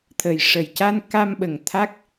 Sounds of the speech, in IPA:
t̪ʰ ə˨˩ j ʂ ə˨˩ j c a˧ n k a˧ m ɓ ə˨˩ ŋ t̪ʰ a˦˥ k̚

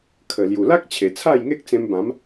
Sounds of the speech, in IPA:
kʰ ə˨˩ l j u˨˩ l a˦ k̚ t͡ɕʰ e˨˩ t͡sʰ a˥˧ j ŋ e˦ k̚ t͡s ẽ˧ m b ã˨˦ m

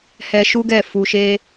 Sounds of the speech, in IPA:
h ɛ˧ ʃ u˦ ɡ ɛ˦˨ f u˧ ʃ e˦

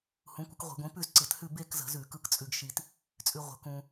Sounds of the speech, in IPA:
h ũ˨˥ kʷ ə˨˥ k ʁʷ i̤˧˩˧ ɡʷ ĩ˨˥ p ʉ˥˧ z ǀ ɯ˧˩˧ t h ʉ˥˧ b e˥˧ k z ə̤˧˩˧ z ʉ˧˩˧ k ɯ˧ k t͡sʼ ʉ˧ ɡ ʃ i˧ t | t͡sʼ ʉ˧ ʁʷ ə̤˨˥ k ũ˧

